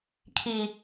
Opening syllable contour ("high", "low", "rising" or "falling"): low